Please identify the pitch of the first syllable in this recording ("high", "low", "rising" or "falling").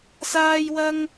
high